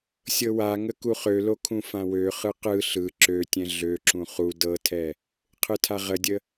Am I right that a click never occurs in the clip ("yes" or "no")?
no